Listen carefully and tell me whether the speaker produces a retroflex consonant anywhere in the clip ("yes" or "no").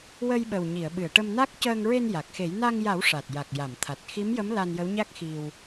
yes